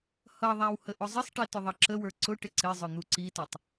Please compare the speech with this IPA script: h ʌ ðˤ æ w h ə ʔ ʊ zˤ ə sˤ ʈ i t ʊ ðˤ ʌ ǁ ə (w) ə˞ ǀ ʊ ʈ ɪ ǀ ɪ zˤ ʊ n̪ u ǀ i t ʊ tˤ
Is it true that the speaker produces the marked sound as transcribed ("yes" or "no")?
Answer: yes